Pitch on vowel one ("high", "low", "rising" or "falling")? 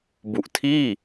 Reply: low